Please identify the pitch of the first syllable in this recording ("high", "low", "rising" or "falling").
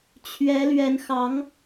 rising